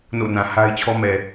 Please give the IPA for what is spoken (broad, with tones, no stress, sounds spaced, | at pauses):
n o̰˦˨ n ã˨ h a˦ ɪ̯ t͡ɕʰ ɔ˦ m ɛ˨